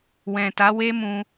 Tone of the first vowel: low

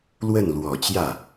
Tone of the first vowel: falling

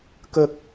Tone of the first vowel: high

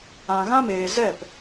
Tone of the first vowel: low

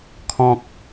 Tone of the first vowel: low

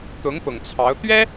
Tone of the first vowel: rising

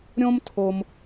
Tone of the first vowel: high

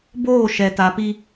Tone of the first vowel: falling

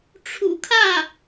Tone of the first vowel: low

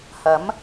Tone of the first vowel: rising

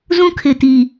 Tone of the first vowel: high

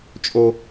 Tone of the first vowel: high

